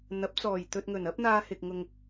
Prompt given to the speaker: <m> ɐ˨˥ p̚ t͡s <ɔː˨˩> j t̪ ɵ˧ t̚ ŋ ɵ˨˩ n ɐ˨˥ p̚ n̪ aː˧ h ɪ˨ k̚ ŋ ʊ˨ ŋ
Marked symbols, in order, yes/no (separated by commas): no, yes